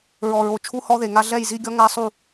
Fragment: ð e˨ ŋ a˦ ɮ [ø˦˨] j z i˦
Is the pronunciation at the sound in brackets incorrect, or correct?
incorrect